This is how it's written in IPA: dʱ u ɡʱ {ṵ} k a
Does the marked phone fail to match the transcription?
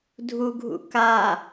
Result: no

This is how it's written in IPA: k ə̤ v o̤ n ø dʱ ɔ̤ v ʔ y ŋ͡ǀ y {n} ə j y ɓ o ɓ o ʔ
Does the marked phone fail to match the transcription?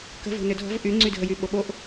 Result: yes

